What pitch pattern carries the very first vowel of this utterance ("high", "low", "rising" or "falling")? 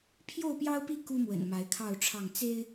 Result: falling